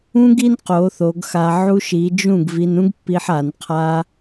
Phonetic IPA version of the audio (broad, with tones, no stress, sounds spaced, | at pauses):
ũ˦ ɡ i˦ n q o˨˦ θ o˨˦ ɡ x a˧ ʕ u˦ ʃ i˨˦ d͡ʒ ũ˦˨ ɡ v i˧ n ũ˦ ɡ pː i˧ ħ a˨˦ n qʰ a˦